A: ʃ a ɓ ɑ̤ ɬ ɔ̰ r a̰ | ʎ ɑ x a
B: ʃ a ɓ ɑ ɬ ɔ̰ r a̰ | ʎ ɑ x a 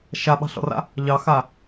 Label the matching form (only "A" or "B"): A